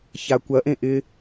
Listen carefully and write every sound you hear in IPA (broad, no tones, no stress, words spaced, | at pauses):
çakʷɐʔẽ ʔɪ